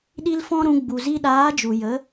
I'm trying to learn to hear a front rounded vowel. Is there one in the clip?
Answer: no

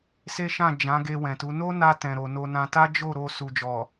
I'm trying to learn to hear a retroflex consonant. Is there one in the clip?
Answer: no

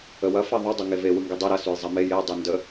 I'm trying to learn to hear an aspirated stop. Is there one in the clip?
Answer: no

